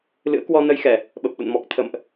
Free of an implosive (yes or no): no